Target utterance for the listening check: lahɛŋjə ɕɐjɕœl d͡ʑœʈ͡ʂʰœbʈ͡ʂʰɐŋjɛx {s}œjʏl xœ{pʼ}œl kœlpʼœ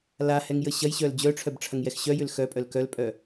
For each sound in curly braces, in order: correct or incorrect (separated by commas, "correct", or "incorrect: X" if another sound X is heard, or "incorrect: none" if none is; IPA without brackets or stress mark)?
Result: incorrect: ɕ, correct